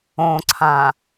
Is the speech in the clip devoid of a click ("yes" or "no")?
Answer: no